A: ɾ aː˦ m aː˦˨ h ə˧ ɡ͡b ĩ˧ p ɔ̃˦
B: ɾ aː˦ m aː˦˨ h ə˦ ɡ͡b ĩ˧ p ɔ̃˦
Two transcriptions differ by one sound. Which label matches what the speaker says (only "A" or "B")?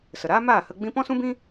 A